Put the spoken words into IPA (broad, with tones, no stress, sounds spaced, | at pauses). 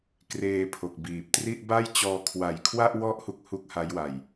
k r eː˧ pʰ o˨˩ k̚ b iː˨˩ p̚ t r i˥˩ ʔ b a˥˩ j t͡ɕ ɔː˧ kʰ w a˨˩ j kʰ w a˥˩ ʔ w ɔ˦˥ ʔ h u˥˩ k̚ h u˥˩ k̚ h a˦˥ j w a˨˩ j